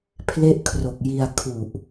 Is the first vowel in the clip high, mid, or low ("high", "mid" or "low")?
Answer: mid